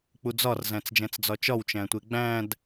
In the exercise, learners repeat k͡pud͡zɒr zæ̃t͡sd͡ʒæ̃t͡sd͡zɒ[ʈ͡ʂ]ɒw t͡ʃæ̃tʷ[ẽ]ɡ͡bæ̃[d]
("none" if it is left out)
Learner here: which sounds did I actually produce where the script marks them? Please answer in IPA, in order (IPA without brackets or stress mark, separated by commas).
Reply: t͡ʃ, e, d